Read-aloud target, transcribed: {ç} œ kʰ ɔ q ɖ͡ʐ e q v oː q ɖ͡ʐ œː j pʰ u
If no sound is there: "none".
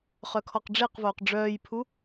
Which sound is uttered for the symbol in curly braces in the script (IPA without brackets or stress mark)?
χ